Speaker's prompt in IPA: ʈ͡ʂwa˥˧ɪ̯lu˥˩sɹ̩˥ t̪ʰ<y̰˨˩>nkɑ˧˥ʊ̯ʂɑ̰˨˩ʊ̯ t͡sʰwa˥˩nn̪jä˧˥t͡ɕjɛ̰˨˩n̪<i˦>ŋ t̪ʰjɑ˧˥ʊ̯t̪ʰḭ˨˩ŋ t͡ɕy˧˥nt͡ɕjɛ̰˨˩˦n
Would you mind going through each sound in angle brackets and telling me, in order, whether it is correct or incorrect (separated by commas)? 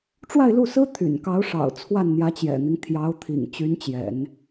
correct, correct